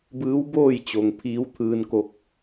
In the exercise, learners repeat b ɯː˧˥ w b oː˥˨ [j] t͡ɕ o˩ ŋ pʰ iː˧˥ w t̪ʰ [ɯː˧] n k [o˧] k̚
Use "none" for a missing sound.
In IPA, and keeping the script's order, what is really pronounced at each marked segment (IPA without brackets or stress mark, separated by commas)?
j, ɯː˧, o˧